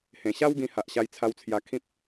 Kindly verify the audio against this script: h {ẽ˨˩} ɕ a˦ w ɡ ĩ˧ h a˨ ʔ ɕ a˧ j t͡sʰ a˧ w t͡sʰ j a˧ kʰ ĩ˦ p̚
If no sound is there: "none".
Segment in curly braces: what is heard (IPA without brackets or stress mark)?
ẽ˨˩